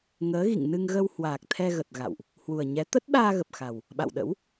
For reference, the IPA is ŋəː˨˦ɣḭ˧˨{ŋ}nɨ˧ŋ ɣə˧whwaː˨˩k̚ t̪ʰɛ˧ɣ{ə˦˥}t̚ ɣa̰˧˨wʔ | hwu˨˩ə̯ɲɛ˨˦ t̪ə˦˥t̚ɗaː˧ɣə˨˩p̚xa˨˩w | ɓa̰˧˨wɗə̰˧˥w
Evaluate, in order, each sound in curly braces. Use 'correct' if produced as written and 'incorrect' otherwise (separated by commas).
correct, incorrect